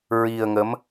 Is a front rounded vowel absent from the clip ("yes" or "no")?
yes